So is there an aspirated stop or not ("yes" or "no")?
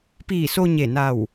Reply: no